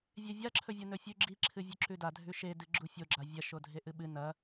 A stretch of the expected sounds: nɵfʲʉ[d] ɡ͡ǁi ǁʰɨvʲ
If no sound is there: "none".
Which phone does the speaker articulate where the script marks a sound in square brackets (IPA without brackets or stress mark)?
none